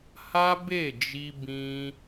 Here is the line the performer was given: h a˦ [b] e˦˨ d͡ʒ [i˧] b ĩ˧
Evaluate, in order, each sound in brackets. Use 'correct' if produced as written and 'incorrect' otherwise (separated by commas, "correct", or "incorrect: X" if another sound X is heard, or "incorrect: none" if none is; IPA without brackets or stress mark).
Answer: correct, correct